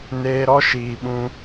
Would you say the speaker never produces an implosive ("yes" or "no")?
no